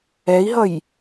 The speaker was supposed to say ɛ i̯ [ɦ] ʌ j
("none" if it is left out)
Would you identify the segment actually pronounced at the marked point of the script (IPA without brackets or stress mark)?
ɦ